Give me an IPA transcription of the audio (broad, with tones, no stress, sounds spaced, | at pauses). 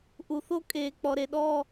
ʔ u˩ θ o˥ kʼ eː˩ k͡p ɔ˩ ɾ e˩ ɗ ɔː˥˨